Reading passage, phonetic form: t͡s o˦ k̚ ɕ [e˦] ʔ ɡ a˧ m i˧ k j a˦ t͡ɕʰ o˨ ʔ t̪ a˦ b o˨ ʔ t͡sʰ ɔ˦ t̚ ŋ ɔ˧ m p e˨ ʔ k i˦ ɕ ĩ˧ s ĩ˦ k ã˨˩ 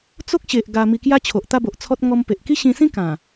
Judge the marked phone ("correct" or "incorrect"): incorrect